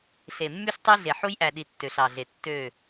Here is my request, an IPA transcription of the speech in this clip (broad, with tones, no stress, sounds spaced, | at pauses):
ɬ e˨ mː y˦ ɬ tˤ y˦ ɮ e˨ ħ u˦ j ʔ æ˨ ɗ i˨ tː ø˨ ɬ ɑ˨ ɮ e˨ tː ø˦˨